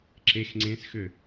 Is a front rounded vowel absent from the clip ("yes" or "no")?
no